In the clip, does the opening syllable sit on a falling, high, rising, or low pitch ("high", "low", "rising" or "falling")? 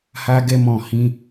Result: high